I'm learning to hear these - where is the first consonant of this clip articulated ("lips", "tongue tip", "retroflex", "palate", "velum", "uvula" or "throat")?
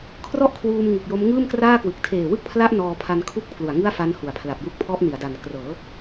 velum